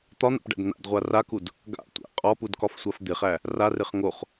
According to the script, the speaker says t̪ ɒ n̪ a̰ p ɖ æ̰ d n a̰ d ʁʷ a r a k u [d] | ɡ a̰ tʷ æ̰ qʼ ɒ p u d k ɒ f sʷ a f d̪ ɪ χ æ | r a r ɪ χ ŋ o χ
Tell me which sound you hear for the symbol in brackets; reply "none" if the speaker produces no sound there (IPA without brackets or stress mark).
d